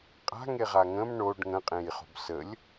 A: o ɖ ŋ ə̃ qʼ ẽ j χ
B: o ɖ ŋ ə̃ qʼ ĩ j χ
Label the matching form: A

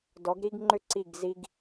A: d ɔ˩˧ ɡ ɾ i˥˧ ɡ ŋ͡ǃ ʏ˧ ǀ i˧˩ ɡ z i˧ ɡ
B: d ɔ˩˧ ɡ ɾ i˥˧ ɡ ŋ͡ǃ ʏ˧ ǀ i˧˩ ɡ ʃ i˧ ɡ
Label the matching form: A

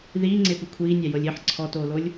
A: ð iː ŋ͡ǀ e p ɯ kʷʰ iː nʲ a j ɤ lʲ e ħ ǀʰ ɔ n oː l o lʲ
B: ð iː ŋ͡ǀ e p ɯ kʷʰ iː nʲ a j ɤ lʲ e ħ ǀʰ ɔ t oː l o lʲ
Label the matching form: B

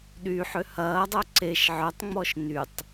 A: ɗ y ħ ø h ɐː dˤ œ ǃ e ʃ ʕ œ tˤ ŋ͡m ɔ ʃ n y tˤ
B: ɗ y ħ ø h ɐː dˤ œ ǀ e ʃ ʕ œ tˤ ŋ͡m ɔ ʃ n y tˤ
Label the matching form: B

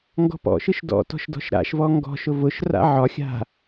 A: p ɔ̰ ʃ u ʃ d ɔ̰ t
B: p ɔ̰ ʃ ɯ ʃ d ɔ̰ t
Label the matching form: B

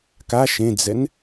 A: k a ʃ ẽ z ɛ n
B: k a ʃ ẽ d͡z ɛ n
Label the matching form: B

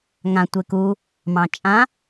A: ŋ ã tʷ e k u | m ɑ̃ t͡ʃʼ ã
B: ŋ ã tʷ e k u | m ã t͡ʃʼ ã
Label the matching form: A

